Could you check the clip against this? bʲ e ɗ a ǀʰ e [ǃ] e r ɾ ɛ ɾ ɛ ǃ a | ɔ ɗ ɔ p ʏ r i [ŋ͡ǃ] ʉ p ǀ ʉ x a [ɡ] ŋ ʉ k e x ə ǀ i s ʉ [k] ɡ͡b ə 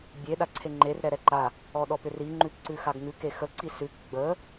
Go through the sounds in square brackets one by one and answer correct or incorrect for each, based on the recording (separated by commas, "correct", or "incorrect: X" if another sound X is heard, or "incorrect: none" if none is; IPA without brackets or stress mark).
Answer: incorrect: ŋ͡ǃ, correct, correct, correct